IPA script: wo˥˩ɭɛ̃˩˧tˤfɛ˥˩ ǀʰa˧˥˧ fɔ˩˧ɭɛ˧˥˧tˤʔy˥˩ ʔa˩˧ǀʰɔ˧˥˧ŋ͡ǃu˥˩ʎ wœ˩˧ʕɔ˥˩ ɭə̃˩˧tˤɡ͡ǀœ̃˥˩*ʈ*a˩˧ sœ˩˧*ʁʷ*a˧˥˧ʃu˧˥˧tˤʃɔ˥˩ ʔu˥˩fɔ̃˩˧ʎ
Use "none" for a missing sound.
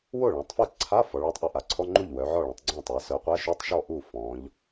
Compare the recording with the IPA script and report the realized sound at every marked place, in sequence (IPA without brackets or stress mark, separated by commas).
tˤ, qʷ